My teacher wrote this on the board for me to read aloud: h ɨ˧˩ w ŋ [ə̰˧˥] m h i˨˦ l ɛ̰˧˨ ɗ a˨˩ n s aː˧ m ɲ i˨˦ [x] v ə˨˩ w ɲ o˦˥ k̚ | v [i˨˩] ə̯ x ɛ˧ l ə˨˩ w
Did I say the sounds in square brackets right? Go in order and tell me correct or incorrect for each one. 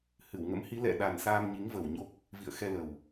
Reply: correct, incorrect: ŋ, incorrect: ḭ˧˨

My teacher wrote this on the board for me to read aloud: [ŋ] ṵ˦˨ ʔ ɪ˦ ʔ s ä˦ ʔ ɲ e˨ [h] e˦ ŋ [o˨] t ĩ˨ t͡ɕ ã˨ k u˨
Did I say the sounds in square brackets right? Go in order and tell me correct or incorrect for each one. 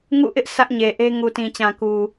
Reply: correct, incorrect: ʔ, incorrect: u˨

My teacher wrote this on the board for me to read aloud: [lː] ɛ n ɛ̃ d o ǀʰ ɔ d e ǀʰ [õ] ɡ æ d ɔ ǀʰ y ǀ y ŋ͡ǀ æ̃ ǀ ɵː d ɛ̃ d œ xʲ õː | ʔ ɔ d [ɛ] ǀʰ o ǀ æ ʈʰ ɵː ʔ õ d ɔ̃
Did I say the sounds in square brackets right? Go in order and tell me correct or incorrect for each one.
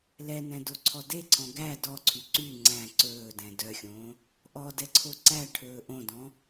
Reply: incorrect: l, incorrect: ɔ̃, correct

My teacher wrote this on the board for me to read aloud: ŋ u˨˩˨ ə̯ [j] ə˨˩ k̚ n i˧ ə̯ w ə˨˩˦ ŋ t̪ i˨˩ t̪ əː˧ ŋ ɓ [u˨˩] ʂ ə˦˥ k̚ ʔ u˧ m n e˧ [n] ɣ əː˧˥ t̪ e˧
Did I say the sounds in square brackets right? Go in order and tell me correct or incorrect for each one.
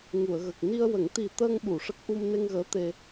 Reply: incorrect: ɣ, incorrect: u˨˩˨, incorrect: ŋ

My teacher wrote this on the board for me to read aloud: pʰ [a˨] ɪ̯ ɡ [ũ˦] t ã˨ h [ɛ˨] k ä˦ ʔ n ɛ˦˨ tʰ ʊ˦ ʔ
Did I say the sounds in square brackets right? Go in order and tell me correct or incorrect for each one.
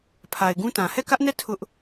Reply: correct, correct, incorrect: ɛ˦˨

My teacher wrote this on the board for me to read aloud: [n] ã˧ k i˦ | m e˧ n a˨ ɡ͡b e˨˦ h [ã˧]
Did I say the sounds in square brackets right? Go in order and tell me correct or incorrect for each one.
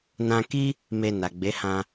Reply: correct, correct

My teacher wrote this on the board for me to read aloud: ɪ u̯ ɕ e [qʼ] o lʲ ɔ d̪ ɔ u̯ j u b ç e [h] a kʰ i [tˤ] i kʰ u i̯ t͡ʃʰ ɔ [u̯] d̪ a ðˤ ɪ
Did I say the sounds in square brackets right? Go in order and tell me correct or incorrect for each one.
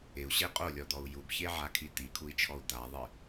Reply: correct, incorrect: ʕ, incorrect: t̪, correct

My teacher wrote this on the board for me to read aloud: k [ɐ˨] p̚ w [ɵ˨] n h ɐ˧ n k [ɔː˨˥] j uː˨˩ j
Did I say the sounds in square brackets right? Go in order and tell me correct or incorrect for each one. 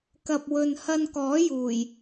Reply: correct, correct, correct

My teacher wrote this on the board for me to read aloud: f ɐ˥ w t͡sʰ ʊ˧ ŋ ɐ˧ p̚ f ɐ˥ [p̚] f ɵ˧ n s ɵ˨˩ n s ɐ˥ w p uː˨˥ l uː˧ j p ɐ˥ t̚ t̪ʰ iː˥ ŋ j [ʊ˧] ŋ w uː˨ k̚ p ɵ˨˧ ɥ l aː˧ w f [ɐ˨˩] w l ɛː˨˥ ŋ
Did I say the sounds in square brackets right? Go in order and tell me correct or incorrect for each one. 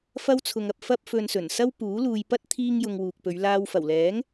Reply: correct, correct, correct

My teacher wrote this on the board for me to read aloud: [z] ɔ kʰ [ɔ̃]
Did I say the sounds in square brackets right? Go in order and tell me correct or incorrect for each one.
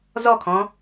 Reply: correct, correct

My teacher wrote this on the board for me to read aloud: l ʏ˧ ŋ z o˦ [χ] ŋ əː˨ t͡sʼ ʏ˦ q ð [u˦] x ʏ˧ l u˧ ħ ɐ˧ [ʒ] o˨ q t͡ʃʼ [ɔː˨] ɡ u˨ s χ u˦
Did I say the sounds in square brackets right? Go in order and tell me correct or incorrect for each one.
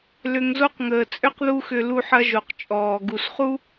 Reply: incorrect: q, correct, correct, correct

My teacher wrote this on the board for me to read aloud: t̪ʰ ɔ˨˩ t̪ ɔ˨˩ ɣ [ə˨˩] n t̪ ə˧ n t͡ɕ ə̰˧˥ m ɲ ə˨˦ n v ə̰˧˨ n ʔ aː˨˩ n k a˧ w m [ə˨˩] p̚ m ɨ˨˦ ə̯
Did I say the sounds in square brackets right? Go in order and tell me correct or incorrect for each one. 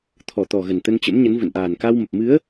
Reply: correct, correct

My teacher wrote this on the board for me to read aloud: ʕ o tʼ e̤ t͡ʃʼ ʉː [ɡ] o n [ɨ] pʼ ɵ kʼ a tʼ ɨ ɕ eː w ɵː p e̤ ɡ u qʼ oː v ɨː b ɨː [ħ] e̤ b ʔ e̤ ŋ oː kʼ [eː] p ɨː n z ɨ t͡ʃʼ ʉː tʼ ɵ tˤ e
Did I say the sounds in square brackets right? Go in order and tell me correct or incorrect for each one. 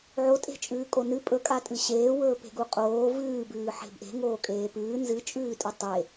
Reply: incorrect: kʼ, correct, correct, correct

